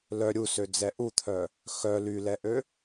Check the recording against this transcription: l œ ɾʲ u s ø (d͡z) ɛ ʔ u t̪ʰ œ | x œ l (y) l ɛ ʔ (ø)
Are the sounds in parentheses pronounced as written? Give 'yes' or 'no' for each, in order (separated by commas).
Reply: yes, yes, yes